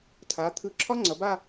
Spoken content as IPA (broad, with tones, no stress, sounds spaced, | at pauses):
tʰ a˩˧ t̪ʰ ɯ˧˩ ǁʰ ɒ˥ ŋ͡ǀ ʌ˩˧ b a˥˧